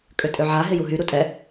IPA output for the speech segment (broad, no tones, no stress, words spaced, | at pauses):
kʼʏtʼøʕa ɦɪjuɦy ɾutʼɛ